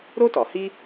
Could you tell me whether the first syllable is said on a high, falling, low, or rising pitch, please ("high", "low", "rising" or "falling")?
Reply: high